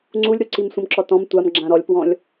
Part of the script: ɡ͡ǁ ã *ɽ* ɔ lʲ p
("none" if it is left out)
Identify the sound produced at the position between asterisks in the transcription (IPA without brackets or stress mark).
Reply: ɾ